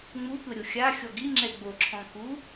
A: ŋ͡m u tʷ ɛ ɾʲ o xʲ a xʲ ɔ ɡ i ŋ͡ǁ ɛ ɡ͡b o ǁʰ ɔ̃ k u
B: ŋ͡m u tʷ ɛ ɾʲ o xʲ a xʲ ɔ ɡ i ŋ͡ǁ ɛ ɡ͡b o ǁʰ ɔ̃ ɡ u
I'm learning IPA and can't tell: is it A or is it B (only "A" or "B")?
A